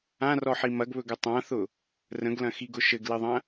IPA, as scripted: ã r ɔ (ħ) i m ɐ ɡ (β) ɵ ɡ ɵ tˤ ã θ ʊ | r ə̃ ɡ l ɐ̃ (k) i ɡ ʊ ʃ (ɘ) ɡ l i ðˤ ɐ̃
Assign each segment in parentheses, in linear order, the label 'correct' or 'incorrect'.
correct, correct, incorrect: x, correct

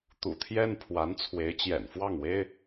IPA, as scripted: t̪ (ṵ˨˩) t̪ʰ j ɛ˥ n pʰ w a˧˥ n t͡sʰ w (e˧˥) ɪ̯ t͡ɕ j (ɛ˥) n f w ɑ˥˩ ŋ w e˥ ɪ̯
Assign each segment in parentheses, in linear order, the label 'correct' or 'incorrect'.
correct, correct, incorrect: ɛ̰˨˩

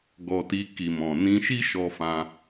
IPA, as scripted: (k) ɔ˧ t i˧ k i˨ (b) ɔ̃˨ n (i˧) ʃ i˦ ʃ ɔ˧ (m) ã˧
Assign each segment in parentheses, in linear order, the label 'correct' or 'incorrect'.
incorrect: ɡ, incorrect: m, incorrect: ĩ˧, incorrect: f

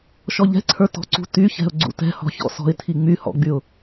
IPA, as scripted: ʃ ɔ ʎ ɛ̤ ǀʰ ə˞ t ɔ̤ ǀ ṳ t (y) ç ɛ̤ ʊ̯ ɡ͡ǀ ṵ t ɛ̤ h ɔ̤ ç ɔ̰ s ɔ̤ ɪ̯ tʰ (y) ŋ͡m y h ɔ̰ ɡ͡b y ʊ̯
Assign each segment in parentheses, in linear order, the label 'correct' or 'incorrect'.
correct, incorrect: i

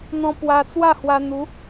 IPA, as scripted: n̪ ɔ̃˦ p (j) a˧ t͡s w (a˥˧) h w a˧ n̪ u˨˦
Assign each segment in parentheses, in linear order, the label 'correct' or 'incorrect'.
incorrect: w, correct

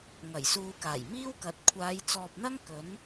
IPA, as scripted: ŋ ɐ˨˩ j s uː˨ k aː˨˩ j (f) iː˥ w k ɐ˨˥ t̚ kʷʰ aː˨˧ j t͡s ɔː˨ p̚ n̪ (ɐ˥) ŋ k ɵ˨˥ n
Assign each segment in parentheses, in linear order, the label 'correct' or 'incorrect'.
incorrect: m, correct

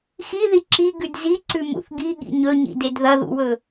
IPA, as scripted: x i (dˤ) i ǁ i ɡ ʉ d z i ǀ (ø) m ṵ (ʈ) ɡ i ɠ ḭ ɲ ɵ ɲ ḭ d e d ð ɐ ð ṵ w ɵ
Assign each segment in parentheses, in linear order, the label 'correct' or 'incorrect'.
incorrect: ð, incorrect: ʉ, incorrect: θ

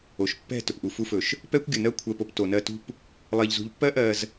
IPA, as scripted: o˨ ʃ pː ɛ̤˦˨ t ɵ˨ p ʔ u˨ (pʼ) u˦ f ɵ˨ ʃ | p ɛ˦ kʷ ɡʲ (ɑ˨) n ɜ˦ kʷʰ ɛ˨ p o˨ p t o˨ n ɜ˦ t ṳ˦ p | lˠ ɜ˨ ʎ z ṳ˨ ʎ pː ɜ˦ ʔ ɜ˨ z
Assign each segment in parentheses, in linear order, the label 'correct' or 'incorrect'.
incorrect: f, incorrect: ə˨

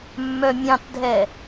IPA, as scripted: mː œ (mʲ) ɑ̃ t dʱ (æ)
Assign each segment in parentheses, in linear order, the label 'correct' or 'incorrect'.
correct, incorrect: ɛ

